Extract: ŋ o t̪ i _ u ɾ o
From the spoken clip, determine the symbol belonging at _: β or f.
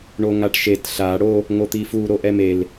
f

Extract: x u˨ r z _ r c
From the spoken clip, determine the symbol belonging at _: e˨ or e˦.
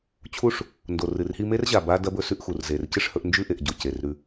e˨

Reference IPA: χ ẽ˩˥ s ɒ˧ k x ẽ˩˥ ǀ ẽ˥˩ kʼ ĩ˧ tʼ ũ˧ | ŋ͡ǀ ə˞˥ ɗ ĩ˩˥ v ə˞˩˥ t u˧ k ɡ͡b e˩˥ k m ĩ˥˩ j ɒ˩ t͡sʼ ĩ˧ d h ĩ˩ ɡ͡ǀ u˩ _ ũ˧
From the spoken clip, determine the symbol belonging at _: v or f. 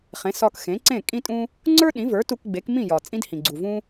v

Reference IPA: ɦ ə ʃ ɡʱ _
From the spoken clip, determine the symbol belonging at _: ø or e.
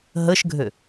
ø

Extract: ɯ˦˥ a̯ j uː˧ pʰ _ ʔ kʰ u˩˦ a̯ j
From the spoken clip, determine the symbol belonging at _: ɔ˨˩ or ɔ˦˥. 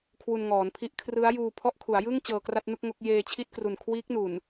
ɔ˦˥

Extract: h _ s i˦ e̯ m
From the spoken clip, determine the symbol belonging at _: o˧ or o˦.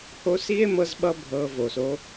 o˦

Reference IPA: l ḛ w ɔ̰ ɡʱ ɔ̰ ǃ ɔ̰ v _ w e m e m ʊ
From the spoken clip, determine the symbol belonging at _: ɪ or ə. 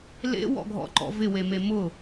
ɪ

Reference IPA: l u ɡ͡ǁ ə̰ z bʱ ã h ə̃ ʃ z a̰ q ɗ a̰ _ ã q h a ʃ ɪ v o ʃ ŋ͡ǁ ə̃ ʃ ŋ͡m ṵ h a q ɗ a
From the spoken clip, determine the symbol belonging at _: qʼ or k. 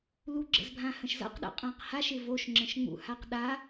qʼ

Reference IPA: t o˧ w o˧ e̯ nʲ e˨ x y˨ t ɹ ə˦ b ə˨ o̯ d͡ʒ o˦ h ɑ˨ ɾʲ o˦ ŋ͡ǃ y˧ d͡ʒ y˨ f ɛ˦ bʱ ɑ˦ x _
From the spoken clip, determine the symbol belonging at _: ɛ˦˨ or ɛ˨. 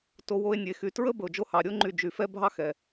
ɛ˨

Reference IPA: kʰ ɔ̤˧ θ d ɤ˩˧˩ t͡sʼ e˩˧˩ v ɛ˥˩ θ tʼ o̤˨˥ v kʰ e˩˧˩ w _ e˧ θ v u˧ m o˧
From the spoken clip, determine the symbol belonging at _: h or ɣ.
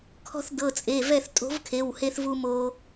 h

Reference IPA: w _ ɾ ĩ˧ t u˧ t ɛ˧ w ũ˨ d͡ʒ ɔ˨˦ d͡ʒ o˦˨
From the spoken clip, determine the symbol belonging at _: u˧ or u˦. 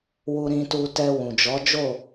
u˧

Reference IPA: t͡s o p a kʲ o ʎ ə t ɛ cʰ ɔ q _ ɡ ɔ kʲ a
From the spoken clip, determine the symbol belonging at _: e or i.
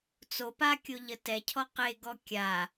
e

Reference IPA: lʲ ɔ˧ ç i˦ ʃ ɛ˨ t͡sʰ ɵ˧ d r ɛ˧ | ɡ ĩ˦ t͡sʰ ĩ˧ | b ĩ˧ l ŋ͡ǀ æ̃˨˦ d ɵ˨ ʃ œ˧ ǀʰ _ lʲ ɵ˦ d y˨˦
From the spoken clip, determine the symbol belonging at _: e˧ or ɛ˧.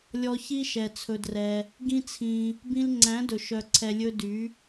ɛ˧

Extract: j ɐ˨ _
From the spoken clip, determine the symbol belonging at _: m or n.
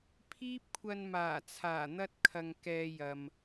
m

